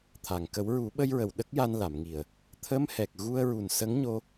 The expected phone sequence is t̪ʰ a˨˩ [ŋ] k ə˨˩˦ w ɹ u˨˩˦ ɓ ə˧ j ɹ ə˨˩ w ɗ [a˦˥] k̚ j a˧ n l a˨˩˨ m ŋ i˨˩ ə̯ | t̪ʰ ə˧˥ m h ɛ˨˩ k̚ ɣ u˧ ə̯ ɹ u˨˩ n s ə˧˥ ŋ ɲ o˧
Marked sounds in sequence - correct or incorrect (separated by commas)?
correct, incorrect